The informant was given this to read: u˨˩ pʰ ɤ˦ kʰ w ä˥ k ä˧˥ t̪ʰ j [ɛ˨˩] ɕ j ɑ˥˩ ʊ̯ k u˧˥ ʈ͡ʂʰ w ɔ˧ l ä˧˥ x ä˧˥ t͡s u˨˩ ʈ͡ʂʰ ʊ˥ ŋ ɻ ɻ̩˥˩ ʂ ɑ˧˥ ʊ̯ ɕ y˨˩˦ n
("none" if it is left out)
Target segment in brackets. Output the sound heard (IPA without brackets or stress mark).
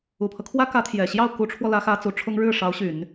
ɛ˨˩